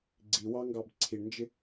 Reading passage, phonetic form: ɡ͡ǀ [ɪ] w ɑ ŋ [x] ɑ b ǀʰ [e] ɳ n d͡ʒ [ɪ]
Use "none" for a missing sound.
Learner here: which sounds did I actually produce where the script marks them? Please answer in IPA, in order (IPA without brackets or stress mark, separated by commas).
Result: i, ɡ, i, ɪ